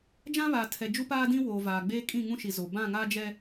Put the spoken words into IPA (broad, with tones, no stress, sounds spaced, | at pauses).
d͡ʒ ã˦ β aː˨ tʰ ɛ˨ d͡ʒ u˦ p aː˦ d ĩ˦ w oː˨ v aː˨ ɡ͡b eː˦ kʼ ĩ˦˨ ŋ ũ˦ ʃ i˨ z o˨ b ã˦˨ ŋ a˦ d͡ʒ ɛ˦